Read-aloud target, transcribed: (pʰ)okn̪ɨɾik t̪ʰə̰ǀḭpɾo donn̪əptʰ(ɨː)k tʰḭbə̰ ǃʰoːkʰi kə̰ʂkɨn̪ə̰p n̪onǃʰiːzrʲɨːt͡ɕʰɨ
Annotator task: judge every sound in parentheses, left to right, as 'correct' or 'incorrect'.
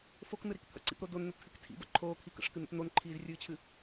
incorrect, incorrect

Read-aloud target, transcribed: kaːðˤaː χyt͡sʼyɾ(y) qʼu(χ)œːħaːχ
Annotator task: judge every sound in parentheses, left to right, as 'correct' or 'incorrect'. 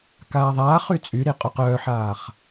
incorrect, incorrect

